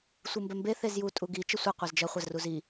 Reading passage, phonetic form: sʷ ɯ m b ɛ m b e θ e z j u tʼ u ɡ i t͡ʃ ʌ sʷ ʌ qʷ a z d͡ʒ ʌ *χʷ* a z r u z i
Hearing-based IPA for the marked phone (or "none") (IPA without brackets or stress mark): χʷ